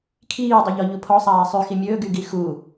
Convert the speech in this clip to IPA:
kʰ iː dˤ i ʎ ɔ ʎ u pʰ ɔ sˤ aː sˤ y x i mʲ ɵː ɡ y ɡ i x u

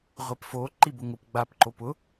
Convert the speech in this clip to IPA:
ʁʷ e p f o ǃ i b ʊ ŋ ʊ p ɡ͡b a p ǃ o p ʊ

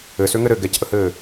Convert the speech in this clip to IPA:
ɘ s ø ŋ ɘ ɾ ɘ ɡ ɛ c ʔ ə h ɘː

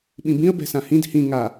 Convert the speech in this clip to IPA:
ɓ ĩ b ĩ ə̯ b ɛ̤ s ã h ĩ d h ĩ ŋ a

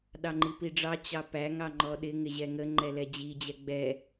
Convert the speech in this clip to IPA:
ɗ ɑ ŋ͡ǃ i p i ɖ͡ʐ ɑ t͡ɕ ɑ p æ ŋ ɑ ŋ͡ǃ ɔ ɗ ɪ ŋ ɪ ʑ ɛ ŋ ə ŋ͡ǃ ɛ l ɛ d͡ʑ i d͡ʑ ɛ ɡ͡b ɛ

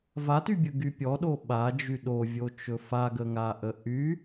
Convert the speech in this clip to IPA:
v a t y bʲ ə ɡ y pʲ ɔ ɗ o ɓ a d͡ʒ y ɗ o vʲ o t͡ʃ ɵ f a ɡ ə ŋ a ʔ ə ʔ y

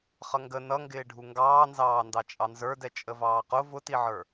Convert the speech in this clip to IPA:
χ ʌ ŋ ɡ ə n ʌ ŋ ɡ ɪː ɖʱ u ŋ ɡ ɑː n z ɑː n d ɑ t͡ʃʼ ɑ n z ə˞ d ɛ t͡ʃʼ ə v ɑː q ʊ v ʊ t i ʕ ə˞

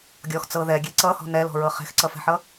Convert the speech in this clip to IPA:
ɡʲ ɔ x t͡s ɤ ð ɛ ɡʲ e ǀ ʌ h ɔ̤ n ɛ l ɔ̤ ɹ ɤ χ e̤ x ǀ ʌ f ɛ̤ ħ ʌ

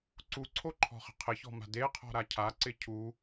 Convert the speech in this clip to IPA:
ǀ u ǀʰ o ǃʰ ɔ̤ χ ə̤ qʰ ɪ ç ɔ̤ m a̤ d e qʰ ɔ̤ ɾ a cʰ a ǀ ɪ cʰ u

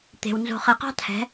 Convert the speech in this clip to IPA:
t̪ e̤˨ w n z o̤˨ χ e˨ q ɑ̤˦ tʰ ɛ̤˨˦

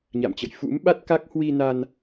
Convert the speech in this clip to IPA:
ɲ a̰˧˨ m t͡ɕ ə̰˧˨ j f ṵ˧˥ m ɓ a˦˥ t̚ k a˦˥ k̚ h w i˧ n a˧ n

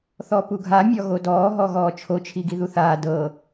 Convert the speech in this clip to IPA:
θ ɔ p u ɡʱ a mʲ ɔ ɣ o d ɔː ɦ ɔ ɣ ɔː t͡ʃʰ o t͡ʃʰ i ɡ i ð u θ aː d ɤ

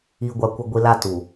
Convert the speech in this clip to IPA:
i˨ ɡʷ a˨ kʷ ɪ˨ ɡʷ i˨ l a˦˨ t u˨

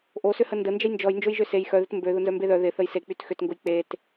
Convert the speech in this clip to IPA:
ʔ o s ʏ h ə n d ə n d͡ʒ ə j n d͡ʒ ɔ j n d͡ʒ o j ʒ ø s e j x œ ð ɪ t m b ø ð ʊ n z œ m b e ð œ ð ɪ θ ə j s e k͡p y t x ʏ t ŋ ɡ ʊ j k͡p e t

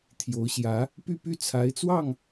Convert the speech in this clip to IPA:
t̪ʰ j o˧˥ ʊ̯ ɕ j ä˧˥ | p y˥˧ p y˥˩ t͡sʰ a˧˥ ɪ̯ t͡s w ɑ˥˩ ŋ

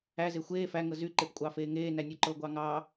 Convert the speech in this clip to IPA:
æ z e xʷ eː f æ ŋ ɤ z y ǃ e p kʷʼ ɑː f eː ŋ eː n æ nʲ u ǃ ɤ ɡʷ ɑ ŋ ɑː

